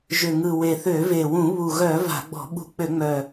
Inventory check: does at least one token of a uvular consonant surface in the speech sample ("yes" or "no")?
no